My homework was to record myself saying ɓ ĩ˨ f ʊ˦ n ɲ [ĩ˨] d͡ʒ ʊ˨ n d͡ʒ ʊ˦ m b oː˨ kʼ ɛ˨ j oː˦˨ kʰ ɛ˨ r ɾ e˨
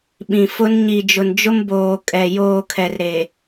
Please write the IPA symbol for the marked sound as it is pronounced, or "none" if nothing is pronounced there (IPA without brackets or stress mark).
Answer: i˨